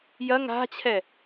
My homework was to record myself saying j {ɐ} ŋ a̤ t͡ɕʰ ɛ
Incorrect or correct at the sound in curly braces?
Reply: correct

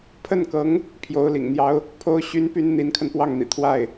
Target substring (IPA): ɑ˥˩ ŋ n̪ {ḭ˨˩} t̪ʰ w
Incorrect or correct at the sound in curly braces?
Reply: correct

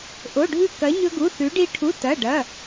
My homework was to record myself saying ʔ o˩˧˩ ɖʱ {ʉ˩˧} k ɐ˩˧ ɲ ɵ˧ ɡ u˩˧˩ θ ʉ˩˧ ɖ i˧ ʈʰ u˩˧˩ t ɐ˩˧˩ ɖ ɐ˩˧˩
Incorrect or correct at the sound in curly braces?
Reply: incorrect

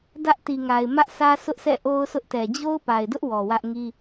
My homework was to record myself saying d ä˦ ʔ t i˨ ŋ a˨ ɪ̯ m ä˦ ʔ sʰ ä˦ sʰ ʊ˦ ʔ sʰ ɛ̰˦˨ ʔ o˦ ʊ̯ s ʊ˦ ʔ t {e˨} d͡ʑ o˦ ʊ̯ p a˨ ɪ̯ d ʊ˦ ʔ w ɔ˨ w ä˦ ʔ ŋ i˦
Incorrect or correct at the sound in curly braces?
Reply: incorrect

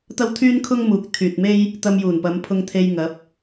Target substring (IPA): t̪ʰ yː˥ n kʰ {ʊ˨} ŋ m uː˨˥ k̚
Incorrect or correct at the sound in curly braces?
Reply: incorrect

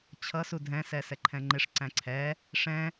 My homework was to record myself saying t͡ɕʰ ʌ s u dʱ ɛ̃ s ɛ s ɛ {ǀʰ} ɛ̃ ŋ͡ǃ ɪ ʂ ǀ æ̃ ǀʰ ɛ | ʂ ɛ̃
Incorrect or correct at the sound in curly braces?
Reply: incorrect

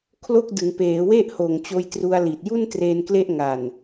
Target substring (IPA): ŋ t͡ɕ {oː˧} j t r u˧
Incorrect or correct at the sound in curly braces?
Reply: correct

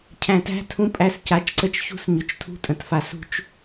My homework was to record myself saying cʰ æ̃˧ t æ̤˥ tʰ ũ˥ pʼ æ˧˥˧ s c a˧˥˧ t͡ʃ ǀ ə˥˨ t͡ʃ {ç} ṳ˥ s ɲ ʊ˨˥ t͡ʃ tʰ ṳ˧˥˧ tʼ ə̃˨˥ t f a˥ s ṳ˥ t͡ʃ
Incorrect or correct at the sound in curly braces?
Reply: correct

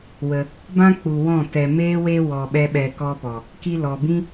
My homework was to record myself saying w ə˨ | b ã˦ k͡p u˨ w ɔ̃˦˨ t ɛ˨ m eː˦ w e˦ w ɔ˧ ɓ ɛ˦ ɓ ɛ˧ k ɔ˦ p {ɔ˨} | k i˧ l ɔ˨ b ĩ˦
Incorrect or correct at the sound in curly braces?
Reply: correct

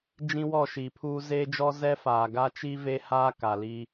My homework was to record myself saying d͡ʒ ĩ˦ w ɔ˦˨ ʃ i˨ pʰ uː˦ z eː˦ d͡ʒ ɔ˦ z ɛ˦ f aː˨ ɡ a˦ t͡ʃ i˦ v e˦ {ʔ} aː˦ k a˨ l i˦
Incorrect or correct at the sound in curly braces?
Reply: incorrect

